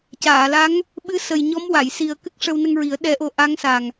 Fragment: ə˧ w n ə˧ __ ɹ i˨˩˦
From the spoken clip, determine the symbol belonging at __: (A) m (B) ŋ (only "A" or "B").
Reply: B